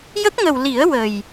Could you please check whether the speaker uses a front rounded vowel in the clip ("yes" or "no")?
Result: no